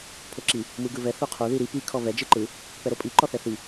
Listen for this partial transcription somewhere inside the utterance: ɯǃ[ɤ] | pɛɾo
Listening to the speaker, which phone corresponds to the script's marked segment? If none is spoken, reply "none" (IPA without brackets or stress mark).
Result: ɯ